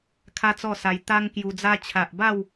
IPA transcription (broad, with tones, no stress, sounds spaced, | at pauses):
kʰ a˦ t͡s ɔ˥˧ s a˧ j t̪ a˦ ŋ k j u˧ d͡z a˦ t͡ɕʰ a˨ ʔ b a˥˧ w